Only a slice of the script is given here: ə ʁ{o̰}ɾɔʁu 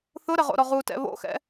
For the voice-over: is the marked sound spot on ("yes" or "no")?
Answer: yes